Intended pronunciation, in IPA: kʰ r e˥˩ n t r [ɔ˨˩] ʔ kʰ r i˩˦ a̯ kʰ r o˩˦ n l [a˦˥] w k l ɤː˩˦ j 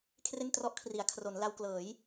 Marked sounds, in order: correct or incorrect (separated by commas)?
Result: incorrect, incorrect